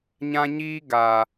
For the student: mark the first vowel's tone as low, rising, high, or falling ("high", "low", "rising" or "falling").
high